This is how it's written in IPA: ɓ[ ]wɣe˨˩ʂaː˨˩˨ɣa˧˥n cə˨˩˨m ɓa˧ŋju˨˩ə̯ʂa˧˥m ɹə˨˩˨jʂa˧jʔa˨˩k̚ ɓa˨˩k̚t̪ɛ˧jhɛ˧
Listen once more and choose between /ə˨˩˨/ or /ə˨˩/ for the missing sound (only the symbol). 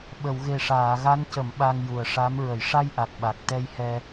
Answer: ə˨˩˨